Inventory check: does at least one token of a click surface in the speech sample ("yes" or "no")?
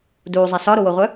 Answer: no